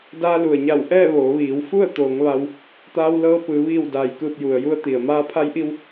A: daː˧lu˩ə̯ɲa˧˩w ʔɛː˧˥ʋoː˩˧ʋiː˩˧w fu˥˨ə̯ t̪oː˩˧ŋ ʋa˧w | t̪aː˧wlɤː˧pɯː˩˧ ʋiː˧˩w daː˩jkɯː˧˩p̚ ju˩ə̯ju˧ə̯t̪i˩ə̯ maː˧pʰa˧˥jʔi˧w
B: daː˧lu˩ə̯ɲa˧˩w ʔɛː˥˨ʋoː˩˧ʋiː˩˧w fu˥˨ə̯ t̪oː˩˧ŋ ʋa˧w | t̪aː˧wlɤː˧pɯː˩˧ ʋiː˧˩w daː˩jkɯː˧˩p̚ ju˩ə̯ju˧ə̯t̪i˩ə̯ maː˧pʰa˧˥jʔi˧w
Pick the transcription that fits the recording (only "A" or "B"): B